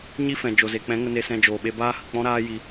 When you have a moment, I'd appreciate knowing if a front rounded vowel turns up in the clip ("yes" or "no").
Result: no